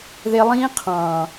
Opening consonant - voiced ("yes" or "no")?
yes